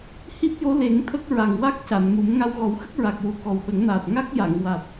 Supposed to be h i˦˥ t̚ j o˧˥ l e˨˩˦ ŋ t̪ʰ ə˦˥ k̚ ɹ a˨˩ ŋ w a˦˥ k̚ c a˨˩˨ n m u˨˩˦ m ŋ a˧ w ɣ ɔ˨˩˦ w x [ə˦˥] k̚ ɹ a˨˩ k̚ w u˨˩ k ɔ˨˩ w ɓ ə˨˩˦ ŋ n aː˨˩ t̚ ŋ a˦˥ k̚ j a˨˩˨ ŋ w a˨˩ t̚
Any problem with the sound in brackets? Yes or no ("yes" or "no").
no